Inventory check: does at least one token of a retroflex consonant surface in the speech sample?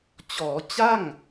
no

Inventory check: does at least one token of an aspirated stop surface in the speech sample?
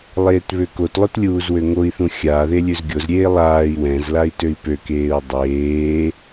no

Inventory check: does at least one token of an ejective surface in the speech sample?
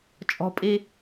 yes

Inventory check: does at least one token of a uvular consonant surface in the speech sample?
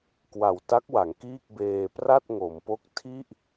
no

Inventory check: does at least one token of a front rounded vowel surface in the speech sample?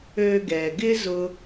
yes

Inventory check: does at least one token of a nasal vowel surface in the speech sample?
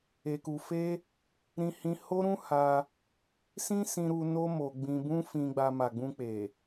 yes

